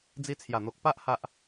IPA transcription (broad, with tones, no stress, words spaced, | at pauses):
d͡zi˧t͡sʰja˨˩n̪o˨k̚pa˦ʔ ha˦ʔ